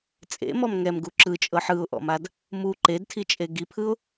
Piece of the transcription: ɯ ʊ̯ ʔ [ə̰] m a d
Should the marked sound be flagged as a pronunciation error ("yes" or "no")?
yes